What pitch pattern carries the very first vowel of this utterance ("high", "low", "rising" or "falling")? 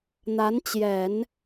rising